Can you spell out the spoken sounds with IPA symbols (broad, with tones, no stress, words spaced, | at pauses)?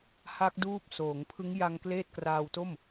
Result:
ha˦˥k̚duː˦˥p̚ soː˩˦ŋpʰɯ˦˥ŋ ja˧ŋ kleː˥˩t̚kraː˧w to˥˩m